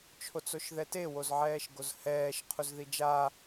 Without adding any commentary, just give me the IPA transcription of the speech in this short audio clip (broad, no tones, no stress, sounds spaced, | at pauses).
t͡ʃʰ o t͡s o ʃ ð ɛ t e w o z ʕ ɛː ʃ ɡ o z h ɛː ʃ qʰ u z ð i d͡ʒ a